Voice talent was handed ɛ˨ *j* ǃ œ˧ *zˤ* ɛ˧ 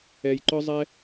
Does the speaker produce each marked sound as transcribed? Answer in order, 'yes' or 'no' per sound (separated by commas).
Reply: yes, yes